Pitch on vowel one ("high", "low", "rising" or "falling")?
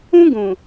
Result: high